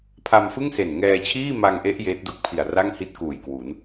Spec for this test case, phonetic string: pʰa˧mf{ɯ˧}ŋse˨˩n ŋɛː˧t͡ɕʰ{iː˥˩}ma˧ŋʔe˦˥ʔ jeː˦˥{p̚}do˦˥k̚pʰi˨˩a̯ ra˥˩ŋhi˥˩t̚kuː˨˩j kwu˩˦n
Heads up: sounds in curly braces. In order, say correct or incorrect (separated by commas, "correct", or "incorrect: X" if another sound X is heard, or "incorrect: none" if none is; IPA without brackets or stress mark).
incorrect: ɯ˥˩, correct, incorrect: t̚